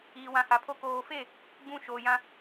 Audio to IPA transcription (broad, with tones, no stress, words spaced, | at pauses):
iː˨wã˨ha˨pʰo˦ koː˨fe˦˨ | ɡ͡bũ˨ ʃoː˨jã˦